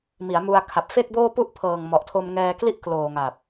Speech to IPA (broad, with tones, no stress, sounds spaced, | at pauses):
m i˩˦ a̯ m u˧ a̯ kʰ a˨˩ p̚ f e˥˩ k̚ b oː˥˩ p u˥˩ ʔ pʰ ɤː˨˩ ŋ m ɔ˨˩ ʔ tʰ o˧ m ŋ ɛː˧ k l i˥˩ ʔ k l oː˨˩ ŋ a˨˩ p̚